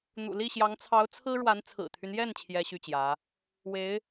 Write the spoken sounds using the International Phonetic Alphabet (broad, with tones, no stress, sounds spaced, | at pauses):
n̪ ṵ˨˩ l i˥˩ ɕ j ɑ˧˥ ŋ t͡sʰ ɑ˧˥ ʊ̯ t͡sʰ ɹ̩˥ ɻ w a˧˥ n t͡sʰ ɹ̩˨˩ t̪ʰ y˦ n j ɛ˥˩ n t͡ɕʰ j ɛ˥ ɕ y˥˩ t͡ɕ j ä˧˥ | w e˧˥ ɪ̯